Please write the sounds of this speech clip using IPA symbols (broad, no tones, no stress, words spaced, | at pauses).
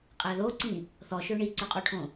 qʼæðoǀĩ | θɔʃø ɳiǀøqʼoʈʰõ